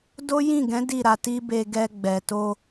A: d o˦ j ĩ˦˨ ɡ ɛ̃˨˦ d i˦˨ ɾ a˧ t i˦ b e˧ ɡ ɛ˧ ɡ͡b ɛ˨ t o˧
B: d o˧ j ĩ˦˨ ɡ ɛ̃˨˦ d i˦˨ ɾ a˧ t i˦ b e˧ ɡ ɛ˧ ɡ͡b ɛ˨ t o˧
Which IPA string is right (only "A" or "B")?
A